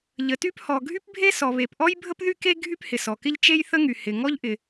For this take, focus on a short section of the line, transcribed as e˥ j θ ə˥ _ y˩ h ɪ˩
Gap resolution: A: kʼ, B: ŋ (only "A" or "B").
B